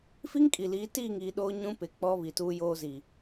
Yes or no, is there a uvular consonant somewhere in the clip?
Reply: no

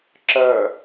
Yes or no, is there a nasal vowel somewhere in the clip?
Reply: no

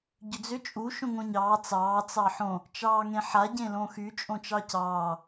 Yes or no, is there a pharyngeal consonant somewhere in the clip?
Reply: yes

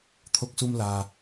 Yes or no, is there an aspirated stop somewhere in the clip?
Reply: yes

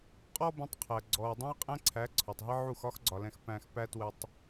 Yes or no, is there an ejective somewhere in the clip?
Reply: yes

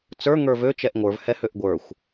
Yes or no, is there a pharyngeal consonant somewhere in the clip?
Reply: no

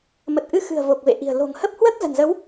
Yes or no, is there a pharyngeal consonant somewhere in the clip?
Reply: no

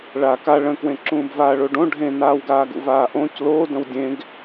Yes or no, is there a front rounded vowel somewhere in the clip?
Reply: no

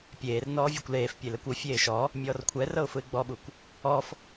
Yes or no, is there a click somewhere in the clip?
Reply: no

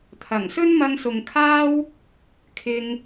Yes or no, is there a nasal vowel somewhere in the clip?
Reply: no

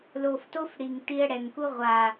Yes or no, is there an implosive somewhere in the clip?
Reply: no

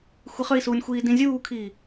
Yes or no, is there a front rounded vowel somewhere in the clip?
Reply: yes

